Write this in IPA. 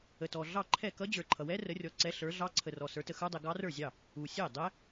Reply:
ə˨tɔ˨ ɮɑ˥˩ǃʰɛ˥˩ kʌ˦˥d͡ʑə˞˨ǃʰʌ˨wɛ˦˥ rə˨˦rʲɔ˨˦ ǀɛ˨˦ ɬə˞˨˦ɮɑ˦˥ ǀʰə˨rɔ˨ sə˞˨˦tə˨xə˞˦˥dˤɛ˨ ɡɑ˦˥rə˞˥˩zʲɑ˥˩ | u˨sʲɛ˥˩ dˤɛ˦˥

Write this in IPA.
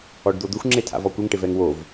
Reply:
ɔɖd̪od̪ʊxʷ ŋ͡ǁetʰa̰vɔkʷɪŋ ʈɪvɛŋwov

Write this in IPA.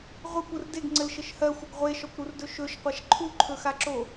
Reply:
ʁʷɯkʷɯr deɡŋ͡ǀɘlʃɘʃ hɜxʷɘɡ ʁʷeʃɔkʷɾurdɵ ʃɵʃqʷaʃ ǃʰuǃʰɵxaǁo

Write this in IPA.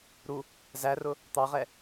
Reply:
ɾu | zærʊ | t̪ɑʁɛ

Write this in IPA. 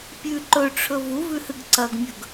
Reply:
pʲʉ ǃɵʈ͡ʂʰɵ vuvʉhɨɡ ǀɐɡmʲɵɡ

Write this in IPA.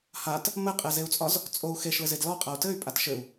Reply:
hat | mɘqʼezeu̯t͡sʼɒz | t͡sʼou̯ xeʃlɘzed lɔqʼau̯ tɘy̯pʼat ʃɘu̯

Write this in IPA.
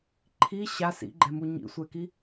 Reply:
ǃʰi ɕa sḭɡ͡ǃɛmu ɲḭsʷɛki

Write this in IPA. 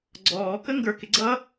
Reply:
ɡ͡ǀɔːkə ŋɡə˞kɪ ɡ͡ǀʌ

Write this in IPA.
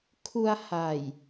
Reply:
kʰu˧a̯ha˨˩j

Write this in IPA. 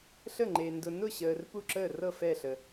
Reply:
ɬə˥˩ŋ͡ǃe˨ ndʊ˨nʊ˥˩ɕəː˨r pu˥˩ǁəː˥˩rɤ˥˩ fɛ˥˩ɬə˨

